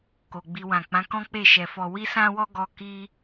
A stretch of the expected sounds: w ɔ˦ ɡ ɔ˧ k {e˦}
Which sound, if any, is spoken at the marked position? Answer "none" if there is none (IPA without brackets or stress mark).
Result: i˦